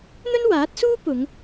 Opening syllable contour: high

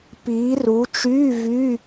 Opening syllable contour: rising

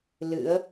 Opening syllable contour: rising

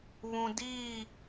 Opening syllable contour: low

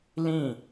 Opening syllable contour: falling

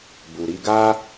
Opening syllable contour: low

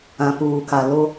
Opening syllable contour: low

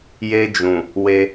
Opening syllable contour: high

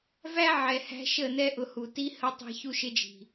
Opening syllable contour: high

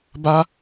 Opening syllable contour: high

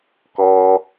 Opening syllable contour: high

